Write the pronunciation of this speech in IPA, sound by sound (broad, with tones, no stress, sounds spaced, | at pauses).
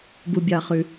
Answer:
b u˧ bʲ ɑ˧ χ ʉ˧